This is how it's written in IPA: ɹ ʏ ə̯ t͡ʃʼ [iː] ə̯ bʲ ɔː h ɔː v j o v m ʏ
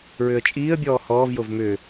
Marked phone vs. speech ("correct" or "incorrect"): correct